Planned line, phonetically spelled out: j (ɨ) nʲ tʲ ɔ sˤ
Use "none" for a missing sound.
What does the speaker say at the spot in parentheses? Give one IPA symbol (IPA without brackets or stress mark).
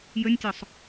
ə